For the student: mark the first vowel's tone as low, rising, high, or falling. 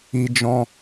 high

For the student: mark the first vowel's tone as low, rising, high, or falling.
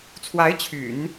rising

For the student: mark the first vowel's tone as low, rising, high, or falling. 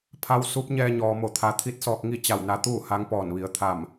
rising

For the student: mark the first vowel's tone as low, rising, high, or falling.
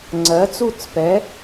rising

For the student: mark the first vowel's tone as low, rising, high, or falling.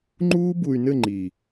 high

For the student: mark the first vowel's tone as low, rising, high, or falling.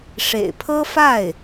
low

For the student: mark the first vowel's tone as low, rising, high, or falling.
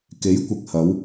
rising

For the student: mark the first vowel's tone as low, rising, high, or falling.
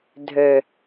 low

